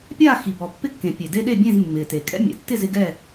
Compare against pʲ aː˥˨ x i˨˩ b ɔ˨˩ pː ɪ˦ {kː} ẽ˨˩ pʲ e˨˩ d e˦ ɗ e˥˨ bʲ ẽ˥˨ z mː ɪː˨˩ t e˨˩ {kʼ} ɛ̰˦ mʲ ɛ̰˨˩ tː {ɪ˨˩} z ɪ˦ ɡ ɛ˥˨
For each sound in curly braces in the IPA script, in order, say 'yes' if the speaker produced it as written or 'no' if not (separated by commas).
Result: yes, yes, no